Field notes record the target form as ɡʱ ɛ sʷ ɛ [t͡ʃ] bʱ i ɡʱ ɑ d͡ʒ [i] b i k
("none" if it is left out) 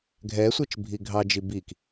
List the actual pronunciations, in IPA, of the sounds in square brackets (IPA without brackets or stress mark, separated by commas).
t͡ʃ, i